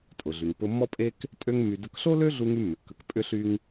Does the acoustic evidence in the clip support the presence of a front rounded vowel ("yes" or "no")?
yes